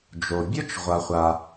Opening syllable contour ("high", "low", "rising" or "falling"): low